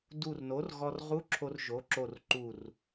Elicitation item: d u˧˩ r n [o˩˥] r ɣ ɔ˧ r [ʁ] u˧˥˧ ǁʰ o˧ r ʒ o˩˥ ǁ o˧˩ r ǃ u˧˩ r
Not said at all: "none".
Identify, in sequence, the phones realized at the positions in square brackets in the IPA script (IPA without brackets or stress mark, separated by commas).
o˩˥, ʁ